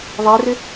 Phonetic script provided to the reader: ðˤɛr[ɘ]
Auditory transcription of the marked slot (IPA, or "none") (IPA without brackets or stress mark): ɘ